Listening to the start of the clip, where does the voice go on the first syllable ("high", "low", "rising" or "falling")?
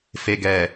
low